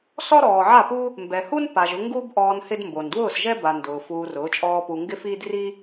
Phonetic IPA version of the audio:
s ɔ˦ ɾ ɔː˨ ʕ a˦˨ p u˦ | m b ɛ˨ h u˦ n p a˨ ʒ ʊ˧ ŋ ɡ u˦ b ʔ ɔː˧ n h ɪ˦ d m b o˨ n d w ʊː˦˨ s ʒ ɛ˦ b a˨ n d ʊː˨ f uː˧ r ʊː˨˦ t͡ʃʼ ɔː˦ p u˧ ŋ ɡ ɪ˦ f iː˦ d r i˦

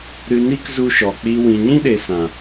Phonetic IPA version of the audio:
ɾ ɨ˧ n i˦ k z u˧ ʃ ɔ˨ k͡p i˧ w ĩ˨ ɲ ĩ˦ ɗ e˨ s ã˨

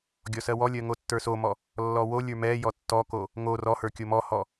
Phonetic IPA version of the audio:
ɡʲ ɔ s ɜ w ɔ lʲ ɜ ŋ o tː ə˞ s o m ɔ | lː ɔ w o lʲ ə˞ m ɛ j ɔ tː ɔ k o | ŋ o r ɔ h ə˞ kʲ o m ɔ h ɔ

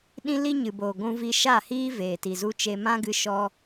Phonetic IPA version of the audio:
ɗ ĩ˦ l i˦ ɲ ɨ˨ b oː˨ ɡʷ ũ˧ v i˧ ʃ a˦˨ h iː˦ v eː˨ t i˨ z u˧ t͡ʃ e˧ m ã˦ ɡ ɨ˧ ʃ ɔ˧

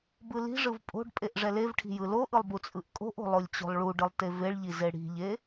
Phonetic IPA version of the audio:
b ɯ l i̤ ʐ ɯ v pʼ o̤ ɖ pʼ e ʔ ʐ ɛ l e v ʈʰ i̤ j ɯ l o ʔ ɯ lˠ b u t͡sʼ ɯ ʔ kʼ o̤ ʔ o̤ lˠ o lʲ t͡ɕ o̤ lˠ ɭ u ɖ ɯ lˠ t e v e ɭ ʎ i z e ɽ i̤ ʎ e

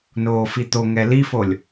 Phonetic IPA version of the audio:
n oː f i t̪ o ŋ ɛ l i f o lʲ

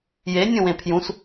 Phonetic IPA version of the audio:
j e nʲ õ w ẽ pʰ j ũ s

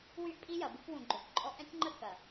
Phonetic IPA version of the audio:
w y˦ ʔ pʼ i˦ j ɐ˨ b u˦ k w ũ˨ ɡ͡ǃ ø˨ k ǃʼ ɔ˦ ʔ ɛ̃˦ tʲ ŋ͡ǃ ə˦ k ɐ˨

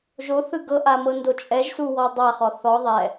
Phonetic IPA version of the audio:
ʒ o θ ɯ ɡ ɤ ʔ a m ɤ n d o t͡ʃʼ ɛ ʒ s u w ɔ dˤ a χ ɔ θ ɔ ðˤ ɛ

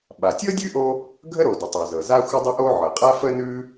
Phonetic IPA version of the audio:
ɓ a˩ tʲ ɤ˥ dʲ ʉ˥ ʔ o˥ | ɡʱ ə˥ ɾ o˩ d ə˩ tˤ ʉ˩ z ɤ˩ z a˥ xʷ ə˥ dˤ ə˥ ʔ o˥ ʕ ɤ˩ qʼ a˥ f ə˥ n ʉ˥

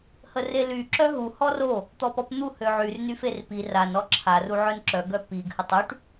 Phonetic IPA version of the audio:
h ə r e l y ǁ œ ɦ u h ɔ r o | t̪ ɔ p ɔ p n̪ u h ø ʕ y r n y f e r p i r a n ɔ ǁʰ a r u ʕ œ n ǁ œ ɡ œ p i ɡ h ə tˤ y ʈ

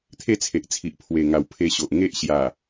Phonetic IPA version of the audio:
t̪ʰ e˥˧ t͡sʰ e˨ ʔ t͡sʰ i˨ ʔ pʰ w e˨˩ ŋ a˨˩ w pʰ e˧ ɕ o˨ ʔ ŋ e˦ ʔ ɕ j a˨˩

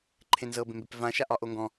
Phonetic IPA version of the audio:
ǃʰ ẽ n z ɤ b ẽ m b e p v ã ʃ a ʔ ɒ ʔ o ŋ ɡ ɔ̃

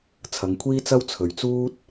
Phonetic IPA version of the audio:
t͡sʰ ɐ˨˧ ŋ kʷʰ iː˥ t͡s ɐ˥ w t͡sʰ ɵ˨ ɥ t͡s uː˥ t̚

